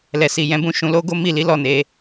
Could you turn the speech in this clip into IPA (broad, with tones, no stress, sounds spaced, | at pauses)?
l ɛ˨ s i˨ j ɛ̃˨˦ b ũ˦˨ ʃ ũ˨˦ l o˦ ɡ o˦ m i˦˨ l i˨˦ l ɔ˦˨ n e˧